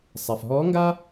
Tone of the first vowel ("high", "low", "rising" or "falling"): low